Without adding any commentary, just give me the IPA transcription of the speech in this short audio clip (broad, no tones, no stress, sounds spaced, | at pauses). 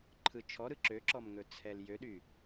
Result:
ǃʰ ɯ t͡ʃʰ ɔ ɾ ɯ ǁ ø ǁ ɔ m ŋ ɵ t͡sʰ ɛ l j ø ɗ y